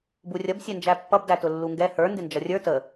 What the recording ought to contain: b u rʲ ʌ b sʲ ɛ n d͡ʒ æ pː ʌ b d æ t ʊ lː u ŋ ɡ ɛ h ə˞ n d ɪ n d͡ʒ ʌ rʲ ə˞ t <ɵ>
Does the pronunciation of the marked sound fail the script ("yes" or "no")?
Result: yes